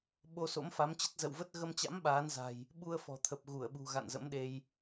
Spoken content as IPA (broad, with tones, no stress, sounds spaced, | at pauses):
ɓ o˧ s o̰˧˥ m f a˨˦ m t͡ɕ ə˦˥ t̚ z ə̰˧˨ w v ə˦˥ t̚ ɣ ə˧ m t͡ɕ a̰˧˥ m ɓ aː˨˦ n z a̤˨˩ j | ɓ u˧ ə̯ f ɔ̤˨˩ t̪ʰ ə˨˩ p̚ ɣ u˧˩ ə̯ ɓ ṳ˨˩ ɣ a̰˧˨ n z ə̰˧˥ m ɗ e˧ j